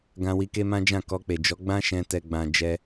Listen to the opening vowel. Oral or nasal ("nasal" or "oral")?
nasal